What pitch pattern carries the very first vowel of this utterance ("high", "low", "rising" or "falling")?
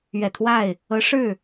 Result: low